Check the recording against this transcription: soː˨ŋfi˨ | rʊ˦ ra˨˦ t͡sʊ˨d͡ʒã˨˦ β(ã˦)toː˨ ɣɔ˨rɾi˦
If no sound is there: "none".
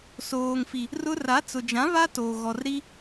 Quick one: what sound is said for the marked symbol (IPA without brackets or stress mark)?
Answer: a˦